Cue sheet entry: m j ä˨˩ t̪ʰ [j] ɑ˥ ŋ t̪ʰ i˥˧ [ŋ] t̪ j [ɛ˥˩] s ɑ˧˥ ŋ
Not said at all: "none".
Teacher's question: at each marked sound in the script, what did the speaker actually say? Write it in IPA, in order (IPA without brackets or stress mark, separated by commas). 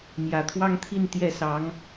w, n, ɛ˥˩